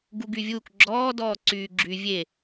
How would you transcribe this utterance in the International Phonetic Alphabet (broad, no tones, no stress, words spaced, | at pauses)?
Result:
ɡuɡyvʲuːk ɡ͡ǁɔː dɔːǀyːɡ͡ǁy vʲe